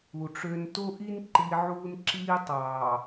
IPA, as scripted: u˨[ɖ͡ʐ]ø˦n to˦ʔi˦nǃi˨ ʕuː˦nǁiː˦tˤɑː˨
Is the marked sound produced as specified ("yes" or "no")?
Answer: no